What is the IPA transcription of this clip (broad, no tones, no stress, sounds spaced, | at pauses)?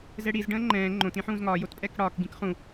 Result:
z ɛ ɽ i z ɖ ə̃ː ŋ͡ǃ ɛ̃ː ŋ͡ǃ õ t ĩ ħ ũː z ŋ ɒː j o t pʼ ɛ k ɽ ɒː k ɡ ĩ k χ ũ